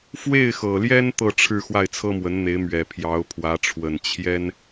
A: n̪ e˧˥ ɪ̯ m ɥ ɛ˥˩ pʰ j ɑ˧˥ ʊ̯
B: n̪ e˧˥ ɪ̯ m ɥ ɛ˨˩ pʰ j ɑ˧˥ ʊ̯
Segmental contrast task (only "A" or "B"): B